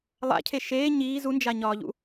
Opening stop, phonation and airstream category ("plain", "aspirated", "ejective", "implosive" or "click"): aspirated